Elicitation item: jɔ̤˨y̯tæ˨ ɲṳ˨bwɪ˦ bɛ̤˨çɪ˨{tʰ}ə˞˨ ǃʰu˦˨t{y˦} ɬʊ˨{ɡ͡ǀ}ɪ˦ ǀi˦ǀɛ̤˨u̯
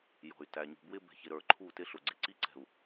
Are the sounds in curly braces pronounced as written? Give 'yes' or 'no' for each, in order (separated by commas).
no, no, yes